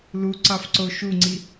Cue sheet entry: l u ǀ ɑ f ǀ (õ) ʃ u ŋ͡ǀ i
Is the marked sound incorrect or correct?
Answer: incorrect